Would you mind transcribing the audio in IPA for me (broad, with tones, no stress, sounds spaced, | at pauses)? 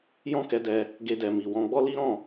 j ɔ̃˦ k ɛ˧ d ɛ˧ | ɡ e˧ d ɛ˨ m i˨ w ɔ̃˧ ɡ͡b ɔ˦ l i˦ ɾ ɔ̃˦˨